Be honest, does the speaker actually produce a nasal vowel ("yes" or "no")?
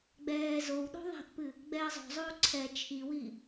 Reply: no